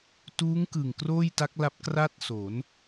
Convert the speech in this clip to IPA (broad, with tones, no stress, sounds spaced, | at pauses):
t uː˦˥ ŋ k ɯ˨˩ ŋ k r oː˥˩ j t a˦˥ k̚ l a˦˥ p̚ k r a˥˩ t̚ s o˩˦ n